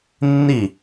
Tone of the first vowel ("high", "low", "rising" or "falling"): falling